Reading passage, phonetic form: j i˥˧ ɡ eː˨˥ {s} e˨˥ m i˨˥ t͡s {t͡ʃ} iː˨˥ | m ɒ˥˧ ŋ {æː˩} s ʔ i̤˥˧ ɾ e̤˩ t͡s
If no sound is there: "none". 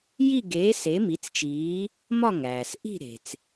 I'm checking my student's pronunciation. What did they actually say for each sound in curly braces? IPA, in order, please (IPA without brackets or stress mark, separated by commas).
s, t͡ʃ, æː˩